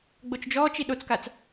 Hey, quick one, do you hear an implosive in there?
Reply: yes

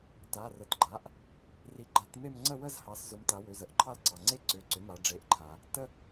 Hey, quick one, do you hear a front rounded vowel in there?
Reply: yes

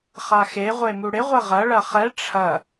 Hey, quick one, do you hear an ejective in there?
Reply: no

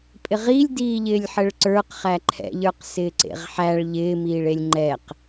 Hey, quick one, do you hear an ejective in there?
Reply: yes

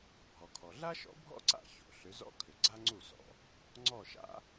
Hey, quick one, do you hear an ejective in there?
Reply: no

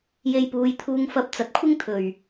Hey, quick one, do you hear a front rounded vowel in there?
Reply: no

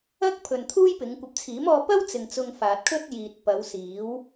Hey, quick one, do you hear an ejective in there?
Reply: no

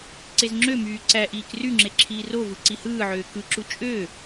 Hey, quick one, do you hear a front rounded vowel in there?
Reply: yes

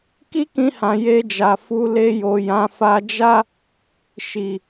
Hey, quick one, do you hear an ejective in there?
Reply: no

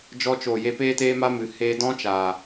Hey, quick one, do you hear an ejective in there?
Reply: no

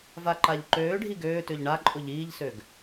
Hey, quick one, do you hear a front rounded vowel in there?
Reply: yes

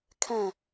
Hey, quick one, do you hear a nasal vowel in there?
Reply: yes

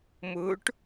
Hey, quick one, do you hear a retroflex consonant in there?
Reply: yes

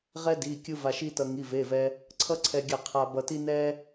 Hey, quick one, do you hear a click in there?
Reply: yes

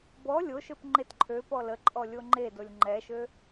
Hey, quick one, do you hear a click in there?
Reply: yes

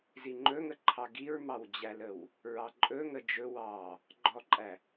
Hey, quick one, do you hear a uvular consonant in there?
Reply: no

